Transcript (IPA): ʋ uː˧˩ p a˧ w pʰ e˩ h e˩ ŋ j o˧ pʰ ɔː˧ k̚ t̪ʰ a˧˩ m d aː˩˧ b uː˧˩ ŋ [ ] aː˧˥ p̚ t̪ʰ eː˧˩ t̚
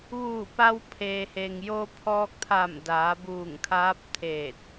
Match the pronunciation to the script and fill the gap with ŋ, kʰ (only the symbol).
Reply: kʰ